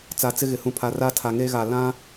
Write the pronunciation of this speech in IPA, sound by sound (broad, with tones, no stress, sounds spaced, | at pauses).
t͡s a˨ t͡s ɪ˦ ɣ ɪ˨ h ũ˨ pʰ a˨ r a˦ tʰ a˨ ŋ e˦ ɣ a˨ l ã˦